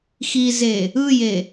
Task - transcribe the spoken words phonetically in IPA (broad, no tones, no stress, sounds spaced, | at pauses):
x i z e | ɯ j e